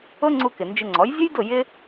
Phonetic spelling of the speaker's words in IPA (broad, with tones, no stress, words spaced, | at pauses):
ʊ˥ ŋ͡ǀu˧ kɪ˩nd͡ʒɪ˧ŋ͡ǀɔ˩˥j zʲʊ˥jdʊ˥˩ jɪ˥